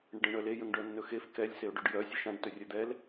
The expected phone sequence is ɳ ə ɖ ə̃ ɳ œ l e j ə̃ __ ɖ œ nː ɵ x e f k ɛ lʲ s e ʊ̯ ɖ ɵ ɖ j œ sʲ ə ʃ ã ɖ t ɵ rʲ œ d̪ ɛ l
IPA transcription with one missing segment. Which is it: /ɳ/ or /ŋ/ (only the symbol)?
ŋ